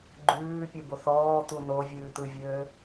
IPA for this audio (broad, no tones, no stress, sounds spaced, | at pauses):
ɡ͡ǃ ʉː pʲ ɯ b o θ ɔː t̪ u n o vʲ ʉː t̪ ɯ vʲ øː